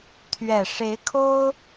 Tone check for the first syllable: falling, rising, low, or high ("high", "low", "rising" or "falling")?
low